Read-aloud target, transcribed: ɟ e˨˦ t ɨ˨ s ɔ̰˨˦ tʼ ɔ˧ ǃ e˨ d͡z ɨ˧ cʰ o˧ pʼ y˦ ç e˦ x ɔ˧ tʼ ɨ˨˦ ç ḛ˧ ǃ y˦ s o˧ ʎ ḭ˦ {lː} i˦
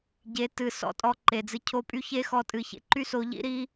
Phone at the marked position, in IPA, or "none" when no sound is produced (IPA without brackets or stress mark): ɾ